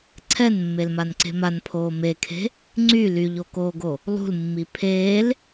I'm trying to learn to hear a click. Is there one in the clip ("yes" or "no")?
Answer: yes